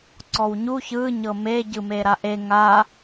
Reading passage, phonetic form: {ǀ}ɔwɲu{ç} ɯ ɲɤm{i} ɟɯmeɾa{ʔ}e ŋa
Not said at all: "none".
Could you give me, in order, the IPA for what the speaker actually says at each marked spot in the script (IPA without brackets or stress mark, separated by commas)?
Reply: ǀ, ç, e, ʔ